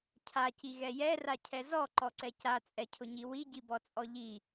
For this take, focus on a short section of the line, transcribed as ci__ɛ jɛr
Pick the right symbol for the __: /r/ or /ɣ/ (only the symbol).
ɣ